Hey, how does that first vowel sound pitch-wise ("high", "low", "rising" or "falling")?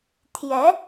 rising